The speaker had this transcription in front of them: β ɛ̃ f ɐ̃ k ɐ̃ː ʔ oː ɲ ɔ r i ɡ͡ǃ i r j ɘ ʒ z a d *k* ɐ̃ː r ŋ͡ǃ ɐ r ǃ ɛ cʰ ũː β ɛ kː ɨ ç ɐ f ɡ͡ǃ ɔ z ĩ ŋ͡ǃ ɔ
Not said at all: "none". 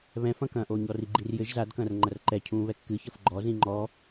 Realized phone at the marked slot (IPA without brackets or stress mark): k